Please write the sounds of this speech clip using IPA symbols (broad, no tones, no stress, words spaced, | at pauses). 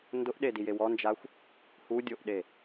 ndʊʔɗedije wɔnd͡ʒaxʷ | hudʲoʔɗe